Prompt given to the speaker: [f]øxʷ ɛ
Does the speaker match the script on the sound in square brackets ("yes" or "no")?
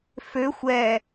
yes